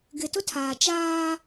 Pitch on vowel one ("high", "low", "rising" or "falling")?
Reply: low